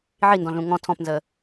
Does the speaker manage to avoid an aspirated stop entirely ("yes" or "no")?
no